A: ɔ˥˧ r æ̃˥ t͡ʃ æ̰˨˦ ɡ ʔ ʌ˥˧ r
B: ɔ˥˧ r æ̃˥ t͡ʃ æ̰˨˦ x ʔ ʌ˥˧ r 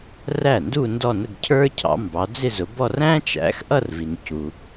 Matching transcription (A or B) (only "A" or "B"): B